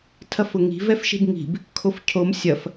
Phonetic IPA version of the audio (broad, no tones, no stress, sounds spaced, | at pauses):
tʰ ɐ f ʊ ŋ i̤ v ɛ f ʃ e̤ b ŋ i̤ b | kʰ o f cʰ o m sʲ ɐ f